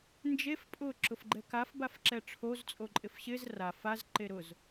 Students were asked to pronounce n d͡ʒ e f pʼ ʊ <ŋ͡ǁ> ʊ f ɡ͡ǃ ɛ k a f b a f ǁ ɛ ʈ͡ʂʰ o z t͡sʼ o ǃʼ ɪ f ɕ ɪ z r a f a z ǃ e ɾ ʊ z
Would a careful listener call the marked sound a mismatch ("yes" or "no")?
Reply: yes